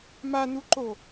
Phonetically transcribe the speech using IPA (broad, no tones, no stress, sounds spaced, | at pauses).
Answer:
m a n u ǃ o